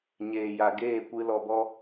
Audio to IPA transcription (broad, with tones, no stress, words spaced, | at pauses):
ɲeː˨ja˨ɡeː˦˨kʷɨ˧ lɔ˨bɔ˧